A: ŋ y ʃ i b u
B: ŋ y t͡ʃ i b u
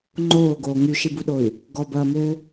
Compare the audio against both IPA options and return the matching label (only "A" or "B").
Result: A